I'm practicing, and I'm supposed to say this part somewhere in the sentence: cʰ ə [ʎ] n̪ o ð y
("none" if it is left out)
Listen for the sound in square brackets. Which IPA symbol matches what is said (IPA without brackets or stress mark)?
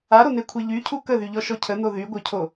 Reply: none